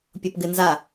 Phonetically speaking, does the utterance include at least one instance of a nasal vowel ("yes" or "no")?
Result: no